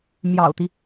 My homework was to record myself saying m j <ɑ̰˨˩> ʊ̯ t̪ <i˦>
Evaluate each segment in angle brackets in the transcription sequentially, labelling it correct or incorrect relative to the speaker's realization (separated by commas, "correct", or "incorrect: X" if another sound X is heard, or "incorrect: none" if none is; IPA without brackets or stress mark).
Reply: correct, correct